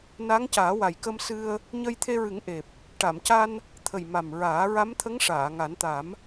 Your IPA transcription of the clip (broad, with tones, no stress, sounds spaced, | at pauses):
n a˧˥ ŋ c aː˨˩˦ w a˨˩ j k ə˧ m s ɨ˧ ə̯ | ɲ ə˧ j t̪ʰ e˧ ɹ ɨ˨˩˦ ŋ ʔ e˨˩ p̚ | ʈ a˨˩˨ m c a˧ n | t̪ʰ ə˨˩ j m a˨˩ m ɹ aː˨˩˦ ɹ a˧˥ m t̪ʰ ə˧˥ ŋ ʂ aː˨˩˨ ŋ a˨˩˦ n t̪ a˨˩˦ m